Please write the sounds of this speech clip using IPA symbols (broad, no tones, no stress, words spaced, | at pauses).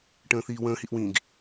ʈə̃ːθiːwə̃ː hiʔwĩɡ